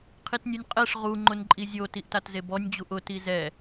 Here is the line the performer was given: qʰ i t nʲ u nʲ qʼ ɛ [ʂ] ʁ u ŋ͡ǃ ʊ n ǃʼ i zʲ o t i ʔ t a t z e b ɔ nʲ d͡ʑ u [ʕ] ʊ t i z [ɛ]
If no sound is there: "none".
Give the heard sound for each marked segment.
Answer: ʂ, ʔ, ɛ

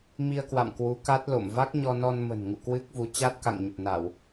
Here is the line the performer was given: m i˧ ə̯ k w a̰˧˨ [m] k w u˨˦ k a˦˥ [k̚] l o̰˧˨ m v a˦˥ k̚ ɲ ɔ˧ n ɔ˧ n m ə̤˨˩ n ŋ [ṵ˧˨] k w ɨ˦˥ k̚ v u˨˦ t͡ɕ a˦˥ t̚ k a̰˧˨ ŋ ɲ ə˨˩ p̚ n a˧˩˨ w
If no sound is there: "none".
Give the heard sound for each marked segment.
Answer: m, t̚, ṵ˧˨

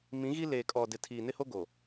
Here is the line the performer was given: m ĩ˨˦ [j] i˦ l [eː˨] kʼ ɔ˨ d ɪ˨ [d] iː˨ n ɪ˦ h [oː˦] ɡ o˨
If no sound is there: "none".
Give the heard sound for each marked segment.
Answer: ɣ, eː˨, tʰ, o˦

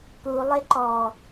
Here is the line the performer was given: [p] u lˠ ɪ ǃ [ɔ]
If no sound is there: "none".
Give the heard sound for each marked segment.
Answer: p, ɔ

